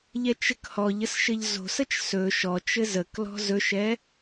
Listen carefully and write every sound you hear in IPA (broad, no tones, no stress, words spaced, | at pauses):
ʎɛt͡ʃɘkhɔʎəs ʃɘʎzo̤sət͡ʃ sɵ ʃɔt͡ʃɘ zəklɔ̤ zɵʃɛ